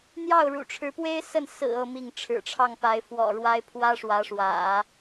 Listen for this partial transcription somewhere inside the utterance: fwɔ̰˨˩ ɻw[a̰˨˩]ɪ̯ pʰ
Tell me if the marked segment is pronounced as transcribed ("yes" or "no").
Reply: no